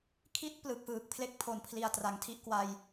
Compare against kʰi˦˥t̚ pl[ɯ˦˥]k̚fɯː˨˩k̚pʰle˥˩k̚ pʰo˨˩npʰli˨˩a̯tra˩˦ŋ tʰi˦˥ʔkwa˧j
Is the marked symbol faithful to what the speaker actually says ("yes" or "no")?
no